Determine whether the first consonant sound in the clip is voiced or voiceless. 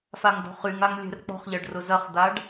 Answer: voiceless